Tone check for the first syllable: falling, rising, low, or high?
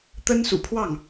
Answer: high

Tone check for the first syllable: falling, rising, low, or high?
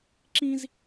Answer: high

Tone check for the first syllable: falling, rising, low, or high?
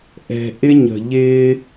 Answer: low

